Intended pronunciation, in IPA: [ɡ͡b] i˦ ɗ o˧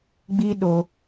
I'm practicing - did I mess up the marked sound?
no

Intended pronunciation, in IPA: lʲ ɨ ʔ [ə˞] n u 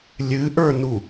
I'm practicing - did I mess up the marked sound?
no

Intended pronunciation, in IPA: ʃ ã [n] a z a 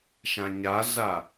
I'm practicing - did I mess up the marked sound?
yes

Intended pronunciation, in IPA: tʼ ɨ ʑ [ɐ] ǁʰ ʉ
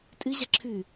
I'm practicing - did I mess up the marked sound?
no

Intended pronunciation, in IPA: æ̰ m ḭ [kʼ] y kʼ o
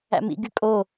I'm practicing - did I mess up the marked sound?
yes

